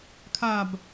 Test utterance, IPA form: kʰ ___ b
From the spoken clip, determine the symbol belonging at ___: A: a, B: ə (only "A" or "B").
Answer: A